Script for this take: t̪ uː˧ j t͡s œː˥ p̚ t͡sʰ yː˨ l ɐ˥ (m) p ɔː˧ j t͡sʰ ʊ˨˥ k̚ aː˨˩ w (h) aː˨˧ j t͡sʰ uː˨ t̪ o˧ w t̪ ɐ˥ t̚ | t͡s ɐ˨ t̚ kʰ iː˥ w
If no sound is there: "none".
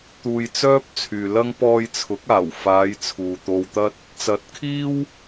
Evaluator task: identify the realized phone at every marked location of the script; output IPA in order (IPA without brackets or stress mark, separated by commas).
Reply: ŋ, f